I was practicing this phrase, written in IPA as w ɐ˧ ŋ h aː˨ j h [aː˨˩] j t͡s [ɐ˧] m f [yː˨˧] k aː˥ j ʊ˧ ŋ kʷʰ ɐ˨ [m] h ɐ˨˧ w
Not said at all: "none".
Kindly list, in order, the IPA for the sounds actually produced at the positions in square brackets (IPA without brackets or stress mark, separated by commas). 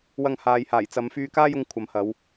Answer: aː˨˩, ɐ˨˧, yː˧, m